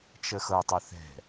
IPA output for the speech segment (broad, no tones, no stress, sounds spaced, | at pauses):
t͡ʃ ə x ɤ tˤ ə θ ɛ̤